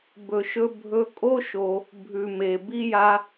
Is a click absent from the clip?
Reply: yes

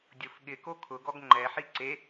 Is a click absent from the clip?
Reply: no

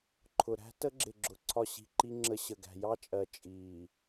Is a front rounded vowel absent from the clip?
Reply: yes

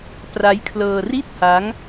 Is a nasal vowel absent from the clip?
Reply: yes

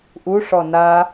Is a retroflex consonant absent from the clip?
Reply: no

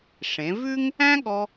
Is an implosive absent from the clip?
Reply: no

